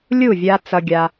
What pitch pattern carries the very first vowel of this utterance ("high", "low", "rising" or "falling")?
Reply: falling